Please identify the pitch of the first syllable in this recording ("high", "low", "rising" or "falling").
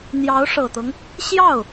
rising